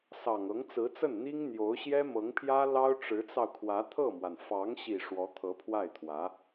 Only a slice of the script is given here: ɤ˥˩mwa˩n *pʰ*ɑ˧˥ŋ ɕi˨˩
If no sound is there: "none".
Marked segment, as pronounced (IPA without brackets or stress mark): f